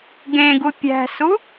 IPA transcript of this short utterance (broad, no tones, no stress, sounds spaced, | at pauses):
ɡ ẽ ɡ u pʲ æ̤ s u